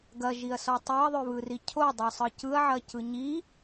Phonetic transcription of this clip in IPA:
ɡ ɐ ʒ i ɐ̯ s ɔ tˤ ø ɐ̯ ðˤ ø β ɯ r i cʰ o dˤ ø sˤ ɯ c ɯ ɐ̯ ʕ ɐ c ɯ ɲ i

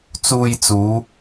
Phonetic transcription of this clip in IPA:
t͡s uː˧ j t͡s uː˨˧

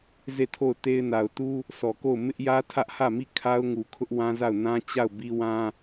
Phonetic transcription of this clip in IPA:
z e˦˨ tʰ o˦˨ ʊ̯ t e˦ ɪ̯ n a˨ ʊ̯ t u˦ | s ɔ˨ k o˦˨ ʊ̯ m ɪ˦ ʔ j ä˦ tʰ ä˦ ʔ h ä˦˨ m i˦˨ kʰ a˦ ʊ̯ ŋ u˨ kʰ ʊ˦ ʔ w ã˦ z a˦˨ ʊ̯ n ã˦ t͡ɕ a˦˨ ʊ̯ b i˦ w ã˦

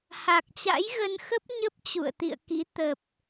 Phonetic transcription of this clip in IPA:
h a˨˩ k̚ t͡ɕ a̰˧˥ j ɣ ə˧ n x ə˦˥ p̚ ɲ ə˦˥ p̚ t͡ɕ ṵ˧˨ ə̯ t̪ ḭ˧˨ ə̯ k ḭ˧˥ t̪ ə˨˩ p̚

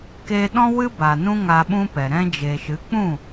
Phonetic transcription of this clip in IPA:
k e˧ ɗ ɔ̃˦ w ɨ˦ b a˨ n ũ˦ ŋ a˧ ɓ ũ˦ p ɛ˨ ɾ ɛ̃˧ d͡ʒ e˨ ʃ ɨ˨˦ k͡p ũ˦˨

